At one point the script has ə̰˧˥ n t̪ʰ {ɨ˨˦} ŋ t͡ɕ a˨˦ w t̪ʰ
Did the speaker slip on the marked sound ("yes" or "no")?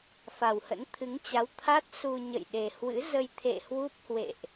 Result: no